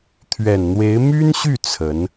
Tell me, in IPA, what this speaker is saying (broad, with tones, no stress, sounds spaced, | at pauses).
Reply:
t̪ʰ ɥ ɛ˨˩ n n̪ w e˧˥ ɪ̯ m y˥ n ɕ y˥˩ t͡sʰ ə˧˥ n